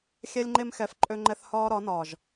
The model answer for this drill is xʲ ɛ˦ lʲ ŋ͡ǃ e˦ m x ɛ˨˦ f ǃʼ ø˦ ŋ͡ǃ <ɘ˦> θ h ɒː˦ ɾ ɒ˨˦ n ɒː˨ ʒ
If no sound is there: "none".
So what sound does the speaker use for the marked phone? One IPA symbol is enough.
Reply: ɛ˦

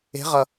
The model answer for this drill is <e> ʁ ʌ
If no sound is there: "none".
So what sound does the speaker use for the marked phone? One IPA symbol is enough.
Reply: e̤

